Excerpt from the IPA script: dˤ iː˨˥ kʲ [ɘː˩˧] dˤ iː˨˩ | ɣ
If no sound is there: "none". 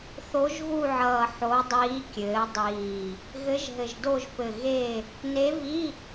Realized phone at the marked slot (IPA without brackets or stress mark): ɘː˩˧